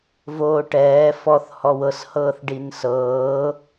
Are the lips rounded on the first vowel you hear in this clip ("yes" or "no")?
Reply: yes